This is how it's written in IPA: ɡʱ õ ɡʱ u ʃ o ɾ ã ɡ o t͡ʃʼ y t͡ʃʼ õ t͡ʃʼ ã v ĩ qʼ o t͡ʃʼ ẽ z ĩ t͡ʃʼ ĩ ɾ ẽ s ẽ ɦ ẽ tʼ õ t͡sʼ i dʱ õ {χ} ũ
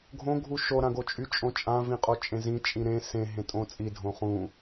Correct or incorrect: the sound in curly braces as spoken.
correct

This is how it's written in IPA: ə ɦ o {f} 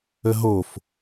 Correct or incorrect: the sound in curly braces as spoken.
correct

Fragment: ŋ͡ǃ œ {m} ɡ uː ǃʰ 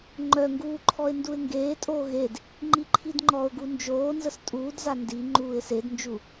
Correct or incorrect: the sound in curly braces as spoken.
incorrect: ŋ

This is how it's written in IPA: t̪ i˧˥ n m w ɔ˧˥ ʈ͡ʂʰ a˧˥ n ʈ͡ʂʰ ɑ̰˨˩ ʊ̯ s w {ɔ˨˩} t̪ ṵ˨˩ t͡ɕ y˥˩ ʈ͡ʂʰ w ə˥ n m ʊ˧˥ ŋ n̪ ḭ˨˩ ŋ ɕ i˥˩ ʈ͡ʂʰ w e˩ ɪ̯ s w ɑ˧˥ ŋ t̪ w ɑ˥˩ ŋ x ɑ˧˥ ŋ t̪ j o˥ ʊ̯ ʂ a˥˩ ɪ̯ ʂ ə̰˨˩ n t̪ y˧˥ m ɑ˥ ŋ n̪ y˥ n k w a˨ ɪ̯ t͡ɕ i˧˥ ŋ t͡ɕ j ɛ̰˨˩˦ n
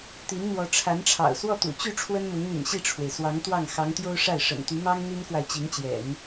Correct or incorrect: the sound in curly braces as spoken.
incorrect: ɔ˥˩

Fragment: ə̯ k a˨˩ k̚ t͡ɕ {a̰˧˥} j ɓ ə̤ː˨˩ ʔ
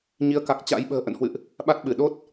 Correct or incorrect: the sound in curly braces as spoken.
correct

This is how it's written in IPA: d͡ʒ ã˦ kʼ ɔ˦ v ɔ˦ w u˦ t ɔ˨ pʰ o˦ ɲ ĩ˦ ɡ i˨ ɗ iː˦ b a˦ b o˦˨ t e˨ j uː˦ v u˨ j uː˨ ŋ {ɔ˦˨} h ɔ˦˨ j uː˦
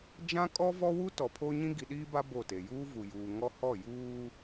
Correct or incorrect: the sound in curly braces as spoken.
incorrect: ɔ˦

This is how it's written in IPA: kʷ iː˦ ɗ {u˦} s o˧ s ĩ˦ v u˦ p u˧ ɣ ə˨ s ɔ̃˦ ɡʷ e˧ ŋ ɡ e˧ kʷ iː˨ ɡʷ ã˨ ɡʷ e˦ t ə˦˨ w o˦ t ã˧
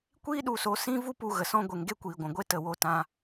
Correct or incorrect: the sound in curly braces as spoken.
incorrect: u˧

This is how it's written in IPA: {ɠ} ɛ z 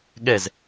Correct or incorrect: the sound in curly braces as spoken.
correct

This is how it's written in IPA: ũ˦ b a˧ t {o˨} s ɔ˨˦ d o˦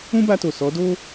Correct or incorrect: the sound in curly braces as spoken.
correct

